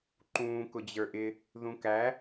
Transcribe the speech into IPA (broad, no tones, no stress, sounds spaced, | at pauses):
ǃ ũː k ʊ d͡ʑ ə˞ ʔ ɪ | ð ũ k æ